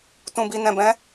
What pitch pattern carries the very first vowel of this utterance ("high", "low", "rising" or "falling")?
low